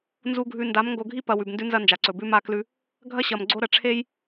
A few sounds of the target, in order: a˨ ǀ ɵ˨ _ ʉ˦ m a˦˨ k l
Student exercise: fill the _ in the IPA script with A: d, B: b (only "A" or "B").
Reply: B